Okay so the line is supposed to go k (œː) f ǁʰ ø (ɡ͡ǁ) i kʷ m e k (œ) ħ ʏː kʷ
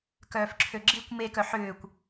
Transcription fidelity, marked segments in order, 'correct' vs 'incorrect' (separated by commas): correct, correct, correct